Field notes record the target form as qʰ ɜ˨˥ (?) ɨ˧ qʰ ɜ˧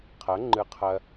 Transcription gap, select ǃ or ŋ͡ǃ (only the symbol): ŋ͡ǃ